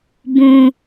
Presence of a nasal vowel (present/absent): present